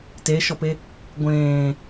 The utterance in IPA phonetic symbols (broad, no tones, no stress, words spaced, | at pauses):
teʃɔpe | ɡʷẽː